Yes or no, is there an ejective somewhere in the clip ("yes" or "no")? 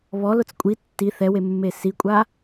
yes